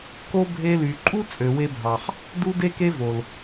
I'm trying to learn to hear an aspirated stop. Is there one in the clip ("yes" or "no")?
no